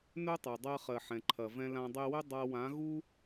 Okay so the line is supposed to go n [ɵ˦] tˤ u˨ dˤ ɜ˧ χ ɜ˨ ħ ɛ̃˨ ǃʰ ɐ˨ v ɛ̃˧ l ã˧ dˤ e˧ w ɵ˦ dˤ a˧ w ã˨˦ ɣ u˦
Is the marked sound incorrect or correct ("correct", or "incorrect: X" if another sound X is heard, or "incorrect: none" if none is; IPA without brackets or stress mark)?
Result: correct